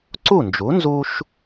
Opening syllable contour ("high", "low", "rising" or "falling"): falling